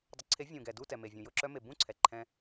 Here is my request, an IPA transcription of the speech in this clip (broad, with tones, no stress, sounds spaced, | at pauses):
dˤ ʊ˩˥ ǀʰ e˩˥ vʲ ũ˩ ɡ ɛ˩ d u˥˩ t ɛ˩ m e˩ vʲ ũ˩ j ʊ˥˩ ǁ œ˧ m e˩ b ũ˥˩ ǀʰ ɛ˩ ǃʰ ɛ̃˧